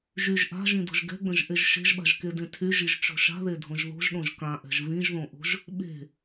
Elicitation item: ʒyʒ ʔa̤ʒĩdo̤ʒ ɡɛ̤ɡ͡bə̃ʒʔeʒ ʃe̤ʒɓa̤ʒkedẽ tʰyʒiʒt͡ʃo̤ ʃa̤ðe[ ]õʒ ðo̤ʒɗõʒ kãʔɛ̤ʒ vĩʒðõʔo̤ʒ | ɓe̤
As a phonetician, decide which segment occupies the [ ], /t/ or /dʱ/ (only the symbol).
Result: dʱ